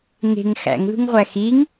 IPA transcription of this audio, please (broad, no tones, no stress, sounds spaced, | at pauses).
ŋ e̤ ŋ x æ̰ ŋ ð ṳ ŋ ʁʷ æ x i ŋ